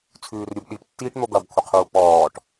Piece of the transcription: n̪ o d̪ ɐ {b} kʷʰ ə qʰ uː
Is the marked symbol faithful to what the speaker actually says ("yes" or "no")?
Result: yes